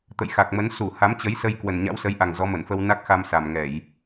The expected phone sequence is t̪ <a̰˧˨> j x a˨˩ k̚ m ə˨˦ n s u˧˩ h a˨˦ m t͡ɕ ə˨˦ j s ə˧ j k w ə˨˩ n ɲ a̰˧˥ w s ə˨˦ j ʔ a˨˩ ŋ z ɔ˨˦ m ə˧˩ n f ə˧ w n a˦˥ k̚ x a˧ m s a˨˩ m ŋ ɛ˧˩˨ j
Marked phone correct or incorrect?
incorrect